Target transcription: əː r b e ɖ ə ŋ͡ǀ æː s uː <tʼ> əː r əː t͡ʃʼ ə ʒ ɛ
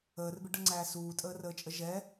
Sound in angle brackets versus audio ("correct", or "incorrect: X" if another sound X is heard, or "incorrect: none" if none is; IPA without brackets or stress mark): correct